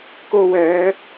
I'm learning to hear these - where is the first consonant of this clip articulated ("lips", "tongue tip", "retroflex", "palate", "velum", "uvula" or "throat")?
velum